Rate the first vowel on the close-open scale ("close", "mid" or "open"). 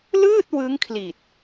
close